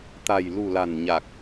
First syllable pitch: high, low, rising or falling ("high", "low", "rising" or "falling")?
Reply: low